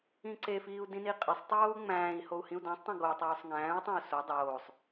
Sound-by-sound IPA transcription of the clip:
ĩ ǀ e f iː u̯ d ĩ n i qʼ e sˤ tˤ oː u̯ ŋ͡m æ̃ː i̯ h o u̯ h ĩ u̯ d æ̃ sˤ tˤ õ ɡ o tˤ uː sˤ ŋ æ̃ː u̯ tˤ õ u̯ s o dˤ oː sˤ

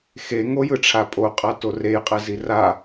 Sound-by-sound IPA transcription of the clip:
x e ŋ o j ɯ ʈ͡ʂʰ a pʼ o qʼ a t o r e j qʼ ɛ z i r a

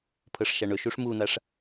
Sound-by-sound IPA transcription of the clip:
pʰ ɤ ʂ ʃ a ɳ ɵ ʃ u ʂ m u n̪ a ʂ

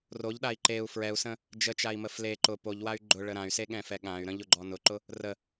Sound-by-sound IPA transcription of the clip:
r o ʎ ɗ a i̯ ǃ e u̯ f ɹ ɛ u̯ s ə̃ | d͡ʒ ə t͡ʃ a i̯ m ə f l e ǃ ʊ p o ʎ w a y̯ ɡ͡ǃ ʊ ɭ ə ɾ ã y̯ s e ɠ ɛ̃ f ɛ ɠ ã y̯ ɾ ə̃ ʎ ʊ ɡ͡ǃ ɔ n ʊ ǃ ʊ | r ə

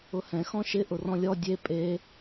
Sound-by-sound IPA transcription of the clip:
ʊ h ɛ̃ x ɔ̃ ʃ ɪ ʔ ʊ r ɔ̃ lʲ ɔ dʲ e pʼ e

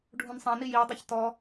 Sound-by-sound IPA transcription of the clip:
ɖʱ ũ n sˤ ɛ̃ n i j i w dˤ y ç t ɔ

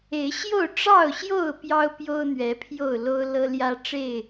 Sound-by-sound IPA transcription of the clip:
e˨˦ ɪ̯ ɕ j o˥˨ ʊ̯ ʈ͡ʂ ɑ˥˨ ʊ̯ ɕ j o˥˨ ʊ̯ p j ɑ˦ ʊ̯ p j o˦ ʊ̯ n̪ ɥ ɛ˨˦ pʰ j o˥˨ ʊ̯ l o˦ ʊ̯ l ɤ˦ l j ä˦ ʈ͡ʂ e˥˨ ɪ̯

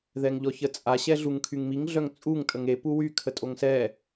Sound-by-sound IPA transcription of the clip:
ð ɛ ŋ ʎ ɔ ç ə t͡sʼ a ɕ ɛ ɮ u ŋ kʰ y ŋ m i ŋ ɮ œ ŋ t͡sʼ u ŋ tʼ ə ŋ e p u w y kʰ ə tʼ o ŋ s ɛ

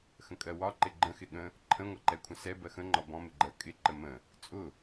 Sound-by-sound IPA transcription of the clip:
x ə̃ kʼ ɜ w ɒ ǃ ɪ ɡ͡ǃ ə̃ x ɪ ɠ ə̃ | ǃʰ ə̃ ŋʷ ʌ ǃ ɛ kʷʰ ə̃ s ɛ b ɜ x ə̃ ŋ͡ǃ ɒ b ɔ̃ m ɪ ɡ͡ǃ ɜ kʼ ɪ ǃ ə m ə̃ | t͡sʼ ʊ

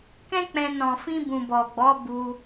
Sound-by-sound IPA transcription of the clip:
k ɛ̃˦ k͡p ɛ̃˧ n ɔ̃˨ f ĩ˧ b ũ˨ b ɔ˨ ɡ͡b ɔ˨˦ b u˧

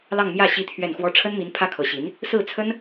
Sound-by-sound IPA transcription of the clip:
l ɑ˥˧ ŋ m j ä˥˩ ɕ i˥ t̪ʰ ɥ ɛ˥˩ n x w ɔ˥ ʈ͡ʂʰ ə˥ n m i˧˥ n pʰ ä˥ kʰ ɤ˧˥ ɕ i˧˥ n | s ɹ̩˥˩ t͡sʰ ə˥ n

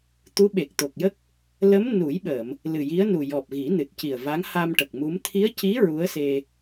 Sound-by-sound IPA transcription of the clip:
t̪ u˧˥ ɓ e˨˩ k̚ t̪ o˨˩ k̚ j ə˦˥ k̚ | l ə˧˥ m n u˨˩˦ j ɓ ə˨˩˨ m | l ɨ˨˩ j i˧˥ ə̯ n u˨˩ j ɔ˨˩ p̚ ɣ i˨˩˦ n ɨ˨˩ t̚ c i˨˩ ə̯ v a˧˥ ŋ h a˧ m ʈ ə˨˩ k̚ m u˧˥ m t̪ʰ i˧˥ ə̯ c i˧˥ ɹ u˧˥ ə̯ s e˧

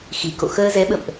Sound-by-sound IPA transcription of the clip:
x i˨˩ k o̰˧˨ x əː˧ z ɛ˨˦ ɓ ə̰˧˨ m ʔ

